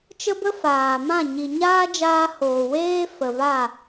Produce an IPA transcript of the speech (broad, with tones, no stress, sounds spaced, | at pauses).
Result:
t͡ʃ ə˦ b ə˦ f aː˨ m ã˦˨ ɲ i˨ ɲ aː˦ d͡ʒ aː˧ h oː˨ w eː˦ f ə˨ v a˦˨